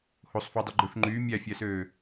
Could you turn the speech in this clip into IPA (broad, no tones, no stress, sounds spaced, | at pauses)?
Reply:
h o sˤ f u dˤ ø ɡ͡ǃ ø f ŋ͡ǃ yː mʲ æ fʲ æ s øː